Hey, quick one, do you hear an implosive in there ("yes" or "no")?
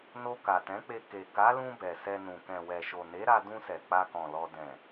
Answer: no